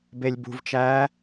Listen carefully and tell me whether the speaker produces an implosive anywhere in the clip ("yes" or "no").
no